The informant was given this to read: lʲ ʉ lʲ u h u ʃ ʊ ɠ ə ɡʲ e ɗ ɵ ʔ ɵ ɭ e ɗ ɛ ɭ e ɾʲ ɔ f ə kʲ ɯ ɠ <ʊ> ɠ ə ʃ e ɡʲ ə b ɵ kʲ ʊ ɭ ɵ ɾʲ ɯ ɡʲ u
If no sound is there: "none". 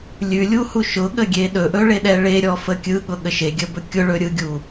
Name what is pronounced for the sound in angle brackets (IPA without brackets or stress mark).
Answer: ʊ